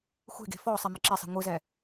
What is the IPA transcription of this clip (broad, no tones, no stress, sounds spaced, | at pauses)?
xʷ e̤ ɡ e̤ f ɔ sˤ e m ɯ ǁ e sˤ i̤ ŋʷ ɯ z ɛ